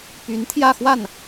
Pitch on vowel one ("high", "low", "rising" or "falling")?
rising